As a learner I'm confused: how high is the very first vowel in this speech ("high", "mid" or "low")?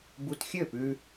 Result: high